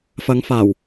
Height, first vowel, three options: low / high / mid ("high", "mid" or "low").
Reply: low